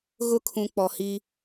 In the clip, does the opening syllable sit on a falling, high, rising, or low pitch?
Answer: high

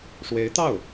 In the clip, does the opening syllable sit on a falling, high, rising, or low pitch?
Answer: rising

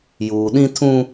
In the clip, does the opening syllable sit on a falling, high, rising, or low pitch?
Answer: low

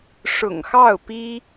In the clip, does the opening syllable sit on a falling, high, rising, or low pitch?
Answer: low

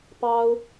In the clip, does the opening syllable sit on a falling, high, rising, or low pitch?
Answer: high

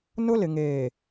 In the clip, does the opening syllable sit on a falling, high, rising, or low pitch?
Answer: high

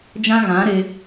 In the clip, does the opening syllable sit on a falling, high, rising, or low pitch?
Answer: high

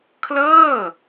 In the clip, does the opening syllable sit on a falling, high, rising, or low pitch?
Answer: falling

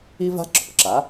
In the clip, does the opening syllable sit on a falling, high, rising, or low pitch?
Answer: high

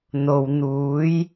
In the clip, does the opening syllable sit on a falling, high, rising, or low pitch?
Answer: low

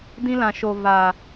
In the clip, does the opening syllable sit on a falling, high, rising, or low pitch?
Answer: high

